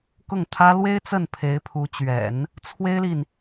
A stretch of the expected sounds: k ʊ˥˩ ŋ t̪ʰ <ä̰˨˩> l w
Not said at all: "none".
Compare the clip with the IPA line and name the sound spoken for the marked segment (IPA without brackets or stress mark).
ä˥